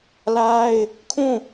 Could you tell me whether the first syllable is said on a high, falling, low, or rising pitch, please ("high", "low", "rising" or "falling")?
high